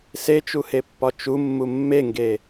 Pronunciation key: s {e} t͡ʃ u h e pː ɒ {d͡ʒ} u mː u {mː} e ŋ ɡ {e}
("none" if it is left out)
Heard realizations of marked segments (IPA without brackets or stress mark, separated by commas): e, t͡ʃ, mː, e